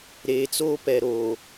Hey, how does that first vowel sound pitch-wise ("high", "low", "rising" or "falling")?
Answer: low